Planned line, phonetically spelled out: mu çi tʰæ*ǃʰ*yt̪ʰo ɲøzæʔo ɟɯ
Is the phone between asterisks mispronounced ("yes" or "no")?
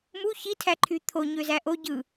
no